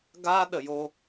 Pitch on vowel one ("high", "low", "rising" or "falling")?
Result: high